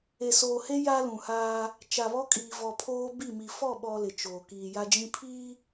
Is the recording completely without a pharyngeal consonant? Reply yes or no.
yes